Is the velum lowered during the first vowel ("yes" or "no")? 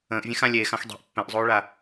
yes